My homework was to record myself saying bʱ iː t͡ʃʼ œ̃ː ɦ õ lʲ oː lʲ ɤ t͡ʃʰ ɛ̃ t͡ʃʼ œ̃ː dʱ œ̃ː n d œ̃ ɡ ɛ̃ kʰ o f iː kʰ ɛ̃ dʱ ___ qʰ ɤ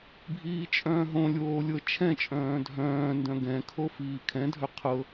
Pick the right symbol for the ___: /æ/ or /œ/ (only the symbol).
œ